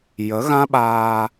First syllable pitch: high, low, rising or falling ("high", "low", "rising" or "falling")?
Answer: rising